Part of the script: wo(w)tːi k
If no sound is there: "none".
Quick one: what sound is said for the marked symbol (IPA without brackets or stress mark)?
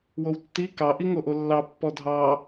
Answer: w